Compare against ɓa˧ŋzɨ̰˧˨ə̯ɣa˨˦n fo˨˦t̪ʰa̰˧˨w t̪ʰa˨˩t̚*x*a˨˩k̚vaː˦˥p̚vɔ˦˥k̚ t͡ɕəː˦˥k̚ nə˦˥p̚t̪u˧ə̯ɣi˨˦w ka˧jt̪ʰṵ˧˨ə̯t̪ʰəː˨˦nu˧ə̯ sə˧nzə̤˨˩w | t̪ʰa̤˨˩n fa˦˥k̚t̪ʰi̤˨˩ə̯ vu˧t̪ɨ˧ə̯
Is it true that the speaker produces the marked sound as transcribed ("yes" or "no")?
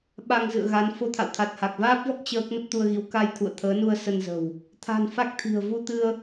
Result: no